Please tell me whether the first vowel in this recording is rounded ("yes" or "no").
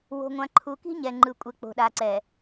yes